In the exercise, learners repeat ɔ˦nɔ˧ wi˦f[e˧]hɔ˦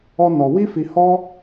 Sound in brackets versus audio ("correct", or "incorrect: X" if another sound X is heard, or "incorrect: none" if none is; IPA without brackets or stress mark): incorrect: i˧